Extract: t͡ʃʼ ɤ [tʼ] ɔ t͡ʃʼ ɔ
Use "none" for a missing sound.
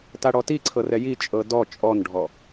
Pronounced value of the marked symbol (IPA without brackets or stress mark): d